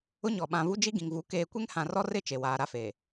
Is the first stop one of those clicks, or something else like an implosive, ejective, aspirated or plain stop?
implosive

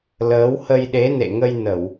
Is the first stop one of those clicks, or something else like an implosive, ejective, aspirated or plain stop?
implosive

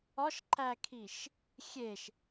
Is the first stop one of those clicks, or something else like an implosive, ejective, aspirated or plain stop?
click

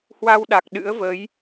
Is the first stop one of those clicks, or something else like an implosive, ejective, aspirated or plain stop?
implosive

